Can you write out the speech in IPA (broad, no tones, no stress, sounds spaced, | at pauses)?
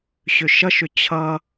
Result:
ɕ ʏ ʃ ʌ ʃ ʏ t͡ɕʰ ʌ